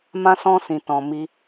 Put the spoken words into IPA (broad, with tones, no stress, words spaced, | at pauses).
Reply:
mã˧sɔ̃˧sĩ˨ tɔ̃˨mi˧